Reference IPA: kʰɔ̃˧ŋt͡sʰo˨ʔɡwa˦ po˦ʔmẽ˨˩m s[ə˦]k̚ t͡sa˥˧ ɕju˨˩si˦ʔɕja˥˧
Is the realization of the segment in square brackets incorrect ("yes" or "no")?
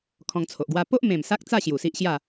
yes